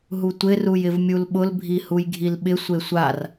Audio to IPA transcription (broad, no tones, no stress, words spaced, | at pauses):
ɦutʷɪ rujɪvmʲulɓʊl bʱihujɡʱilɓɪ sʷesʷar